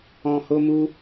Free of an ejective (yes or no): yes